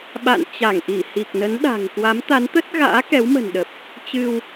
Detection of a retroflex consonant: absent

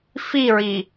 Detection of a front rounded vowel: absent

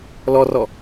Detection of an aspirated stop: absent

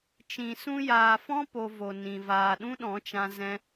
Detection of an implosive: present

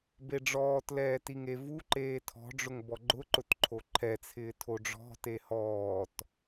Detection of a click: present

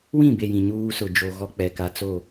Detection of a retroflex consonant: absent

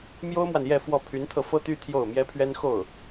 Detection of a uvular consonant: absent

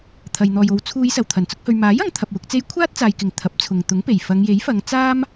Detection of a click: absent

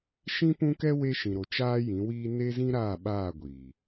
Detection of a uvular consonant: absent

